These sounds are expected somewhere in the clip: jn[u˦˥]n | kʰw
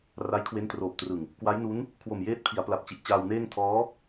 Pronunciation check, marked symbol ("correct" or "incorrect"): correct